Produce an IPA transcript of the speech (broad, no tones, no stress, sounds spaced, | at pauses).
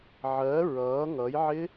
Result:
ʕ ɜ ɹ ʌː ŋ ʌ j ʕ ɪ